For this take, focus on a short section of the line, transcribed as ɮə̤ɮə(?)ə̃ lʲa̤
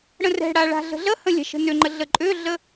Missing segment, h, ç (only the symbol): h